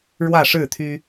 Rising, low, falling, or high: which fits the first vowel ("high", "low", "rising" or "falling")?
falling